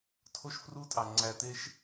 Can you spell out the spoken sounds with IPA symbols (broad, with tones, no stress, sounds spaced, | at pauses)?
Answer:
tʰ o˦ ʃ f r u˦ tʼ ɑ˨ ŋ͡ǀ æ˨ t̪ e˦ ʃ